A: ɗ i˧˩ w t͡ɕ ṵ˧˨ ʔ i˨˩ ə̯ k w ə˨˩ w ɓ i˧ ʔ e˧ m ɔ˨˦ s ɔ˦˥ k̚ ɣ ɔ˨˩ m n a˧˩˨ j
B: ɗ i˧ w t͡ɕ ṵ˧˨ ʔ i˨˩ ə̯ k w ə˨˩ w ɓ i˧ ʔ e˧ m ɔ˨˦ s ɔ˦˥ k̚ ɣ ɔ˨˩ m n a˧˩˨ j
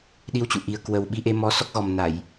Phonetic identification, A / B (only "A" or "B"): B